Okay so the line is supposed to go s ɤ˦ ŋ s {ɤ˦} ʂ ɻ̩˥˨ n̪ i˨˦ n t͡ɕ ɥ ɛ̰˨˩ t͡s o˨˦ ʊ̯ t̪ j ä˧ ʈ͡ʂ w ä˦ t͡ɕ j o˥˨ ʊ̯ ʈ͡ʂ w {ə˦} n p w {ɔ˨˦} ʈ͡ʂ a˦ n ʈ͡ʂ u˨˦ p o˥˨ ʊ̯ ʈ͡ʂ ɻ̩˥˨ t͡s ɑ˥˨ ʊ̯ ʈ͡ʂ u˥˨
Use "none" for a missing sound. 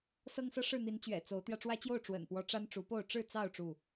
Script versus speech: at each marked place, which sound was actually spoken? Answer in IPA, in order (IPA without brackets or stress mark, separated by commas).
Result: ɤ˦, ə̰˨˩, ɔ˨˦